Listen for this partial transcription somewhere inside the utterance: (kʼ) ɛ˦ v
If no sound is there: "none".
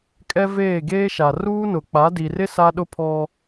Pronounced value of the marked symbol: kʼ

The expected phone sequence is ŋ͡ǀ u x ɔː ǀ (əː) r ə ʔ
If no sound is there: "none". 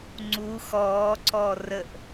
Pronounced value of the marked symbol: ɔː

